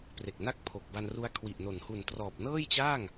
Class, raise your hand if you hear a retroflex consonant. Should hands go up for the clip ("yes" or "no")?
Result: no